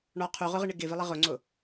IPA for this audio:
ɳ ɔ qʰ u ʁ ʊ ʁ ɪ ɳ ɪ ɡ ɪ v ɪ lˠ ɪ ʁ ʊ ŋ͡ǀ ʊ

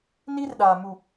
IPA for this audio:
n i˦ r ɗ aː˨ m u˨

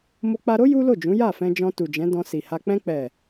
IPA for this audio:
m o˧ k͡p a˧ ɾ o˦ j u˦ l o˦˨ d͡ʒ ũ˨˦ j a˦˨ f ɛ̃˧ d͡ʒ ɔ̃˧ t u˨ d͡ʒ ɛ̃˨˦ d ɔ̃˧ s i˨ h a˧ k͡p ɛ̃˧ k͡p ɛ˨

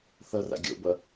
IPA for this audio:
θ ʌ r a̰ ɡʲ o̰ b ʌ

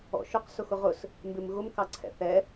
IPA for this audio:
ɔ̰ ʃ ʊ q s ʊ x ʊ ʁ ʊ s | m b ɪ m ɣ ʊ m k ɑ ǀʰ ɛ̰ θ ɛ

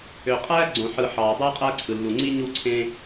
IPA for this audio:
ø˨ qʼ æ˦ ɡ͡ǀ õ˨ ħ ɯ˨ ħ ɑː˨ dˤ ɯː˦ qʼ æ˦ ǀʰ ɯ˨ lː u˨ ŋ͡ǀ i˦ ɲ u˦˨ ǀʰ ẽ˦

